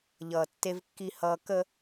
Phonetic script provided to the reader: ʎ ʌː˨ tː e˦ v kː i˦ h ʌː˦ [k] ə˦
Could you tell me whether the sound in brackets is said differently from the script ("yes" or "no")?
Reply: no